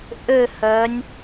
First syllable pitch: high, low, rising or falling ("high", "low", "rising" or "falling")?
falling